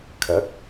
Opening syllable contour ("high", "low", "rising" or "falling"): rising